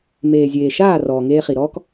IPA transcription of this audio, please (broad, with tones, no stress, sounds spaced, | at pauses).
m eː˨ zʲ eː˨ ʃ aː˦˨ r ɔː˨ ŋ eː˧ χ i˨ ɾ ɔː˦ k